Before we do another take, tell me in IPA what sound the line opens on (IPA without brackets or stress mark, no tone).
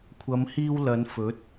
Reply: kʷʰ